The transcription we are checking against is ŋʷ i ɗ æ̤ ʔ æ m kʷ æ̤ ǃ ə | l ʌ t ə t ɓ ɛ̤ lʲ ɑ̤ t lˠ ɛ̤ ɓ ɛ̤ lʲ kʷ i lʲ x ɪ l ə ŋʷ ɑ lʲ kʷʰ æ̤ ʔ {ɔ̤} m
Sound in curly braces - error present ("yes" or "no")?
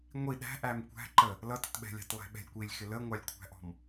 no